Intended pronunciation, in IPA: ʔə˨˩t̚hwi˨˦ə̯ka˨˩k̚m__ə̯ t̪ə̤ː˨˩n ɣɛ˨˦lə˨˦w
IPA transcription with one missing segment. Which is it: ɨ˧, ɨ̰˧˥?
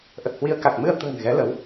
ɨ˧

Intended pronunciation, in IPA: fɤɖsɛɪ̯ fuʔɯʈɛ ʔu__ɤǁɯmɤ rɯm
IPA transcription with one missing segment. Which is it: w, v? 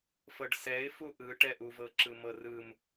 v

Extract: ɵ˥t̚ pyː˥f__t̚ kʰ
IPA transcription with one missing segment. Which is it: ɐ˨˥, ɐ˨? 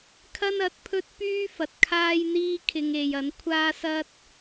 ɐ˨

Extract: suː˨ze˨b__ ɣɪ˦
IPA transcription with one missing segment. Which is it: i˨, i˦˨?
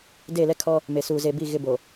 i˦˨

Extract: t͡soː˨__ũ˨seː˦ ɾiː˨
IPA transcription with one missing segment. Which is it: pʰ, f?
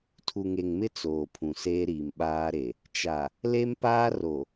pʰ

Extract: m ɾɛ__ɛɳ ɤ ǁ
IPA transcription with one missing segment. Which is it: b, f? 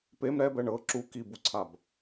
b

